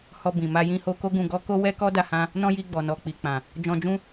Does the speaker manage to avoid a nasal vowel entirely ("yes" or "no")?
no